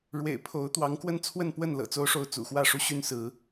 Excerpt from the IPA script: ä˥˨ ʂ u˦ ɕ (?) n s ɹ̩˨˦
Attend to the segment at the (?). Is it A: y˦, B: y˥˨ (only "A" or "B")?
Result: A